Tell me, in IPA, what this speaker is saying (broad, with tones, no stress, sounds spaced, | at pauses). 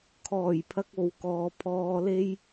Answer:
kʰ ɔː˨˩ j pʰ ɐ˧ k̚ o˨˧ w k ɔː˨ pʰ ɔː˧ l e˥ j